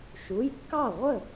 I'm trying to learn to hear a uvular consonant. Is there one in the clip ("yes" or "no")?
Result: yes